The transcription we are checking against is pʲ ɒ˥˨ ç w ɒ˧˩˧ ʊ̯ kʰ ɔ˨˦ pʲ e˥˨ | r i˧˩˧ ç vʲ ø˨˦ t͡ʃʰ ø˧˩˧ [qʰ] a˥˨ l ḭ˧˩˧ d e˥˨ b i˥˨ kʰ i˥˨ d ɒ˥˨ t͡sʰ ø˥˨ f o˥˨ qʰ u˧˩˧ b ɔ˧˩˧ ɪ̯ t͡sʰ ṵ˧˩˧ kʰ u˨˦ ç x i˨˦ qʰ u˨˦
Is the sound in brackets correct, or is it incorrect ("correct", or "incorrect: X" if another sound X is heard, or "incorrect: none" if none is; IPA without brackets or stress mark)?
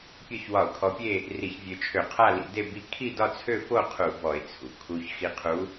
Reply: correct